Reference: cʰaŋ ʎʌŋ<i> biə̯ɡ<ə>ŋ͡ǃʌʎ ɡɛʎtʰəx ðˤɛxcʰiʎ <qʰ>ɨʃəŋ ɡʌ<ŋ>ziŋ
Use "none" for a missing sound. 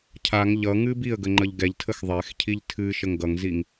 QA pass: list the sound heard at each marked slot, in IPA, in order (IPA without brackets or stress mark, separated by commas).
ɨ, ə, tʰ, ŋ